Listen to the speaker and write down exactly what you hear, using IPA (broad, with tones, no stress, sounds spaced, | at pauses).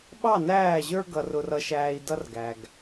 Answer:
ɓ ɑ˦˨ n æː˦˨ ʑ ə˞˦ ɡ ʌ˨ r ʊ˨ r ʌ˨ ʃ æː˨ i̯ d ʌ˦ r ɡ æ˨ ɡ